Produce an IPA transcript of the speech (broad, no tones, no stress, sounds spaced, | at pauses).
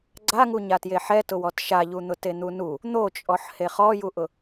ɡ͡ǀ a ŋ u ɲ a t j e ħ ɛ t ʊ w ɔ t ʃ a ʎ u n̪ ʊ t e n̪ u n u | n̪ o t͡ʃʼ ɔ ħ h e χ ɔ j u ʔ ʊ